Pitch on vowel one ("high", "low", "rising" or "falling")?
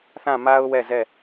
falling